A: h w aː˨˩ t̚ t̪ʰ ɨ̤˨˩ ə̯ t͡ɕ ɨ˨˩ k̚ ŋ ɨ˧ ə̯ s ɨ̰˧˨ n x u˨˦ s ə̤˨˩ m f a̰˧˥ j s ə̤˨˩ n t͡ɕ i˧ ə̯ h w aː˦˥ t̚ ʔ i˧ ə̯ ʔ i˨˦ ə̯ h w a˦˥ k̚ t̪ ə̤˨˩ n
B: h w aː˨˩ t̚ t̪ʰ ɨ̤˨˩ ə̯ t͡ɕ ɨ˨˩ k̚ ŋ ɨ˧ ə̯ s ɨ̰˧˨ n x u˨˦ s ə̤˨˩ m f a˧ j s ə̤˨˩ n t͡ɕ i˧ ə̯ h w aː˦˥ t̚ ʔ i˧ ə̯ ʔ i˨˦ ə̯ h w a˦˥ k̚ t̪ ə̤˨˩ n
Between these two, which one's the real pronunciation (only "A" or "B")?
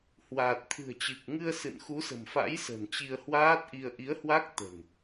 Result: A